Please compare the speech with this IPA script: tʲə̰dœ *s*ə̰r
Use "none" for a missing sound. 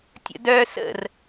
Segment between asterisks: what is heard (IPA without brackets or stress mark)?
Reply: s